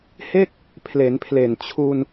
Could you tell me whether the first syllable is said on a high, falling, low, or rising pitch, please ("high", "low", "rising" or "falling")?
falling